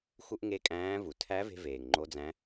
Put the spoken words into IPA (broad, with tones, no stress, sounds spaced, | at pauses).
x u˥ ʔ ŋ e˧˥ kʼ æ̃ː˧˥ v u˩ tʰ æ˧˥ v e̤˧ v eː˩ ŋ ŋ͡ǃ o˧˥ d͡z æ̃˧˥